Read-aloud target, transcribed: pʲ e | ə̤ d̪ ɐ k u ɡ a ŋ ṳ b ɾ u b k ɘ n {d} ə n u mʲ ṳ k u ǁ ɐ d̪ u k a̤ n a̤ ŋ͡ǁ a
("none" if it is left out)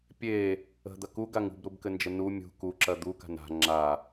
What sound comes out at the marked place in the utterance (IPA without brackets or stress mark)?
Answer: d͡ʒ